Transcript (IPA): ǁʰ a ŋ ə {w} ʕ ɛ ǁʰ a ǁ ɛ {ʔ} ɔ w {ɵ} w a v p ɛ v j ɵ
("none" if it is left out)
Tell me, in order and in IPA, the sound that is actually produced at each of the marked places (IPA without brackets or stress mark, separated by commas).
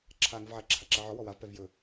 v, ʕ, ɔ